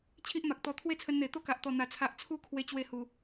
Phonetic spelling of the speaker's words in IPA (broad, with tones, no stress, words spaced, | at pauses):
t͡ɕʰi˦ʔma˨k̚t̪ɔ˧ t̪ʰwe˥˧t͡sʰə˧nn̪e˨˩ t̪o˦ka˨ʔt̪ɔ˨˩n̪a˨˩ t͡sʰa˨ʔt͡sʰu˧ kʰwe˧t͡ɕwe˧hu˨˩